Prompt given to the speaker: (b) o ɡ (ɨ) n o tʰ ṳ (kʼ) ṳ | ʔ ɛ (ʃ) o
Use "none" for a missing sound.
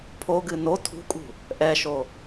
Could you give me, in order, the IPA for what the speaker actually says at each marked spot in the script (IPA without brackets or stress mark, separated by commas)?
pʰ, ɨ, kʼ, ʃ